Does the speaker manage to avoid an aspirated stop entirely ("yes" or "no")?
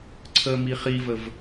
no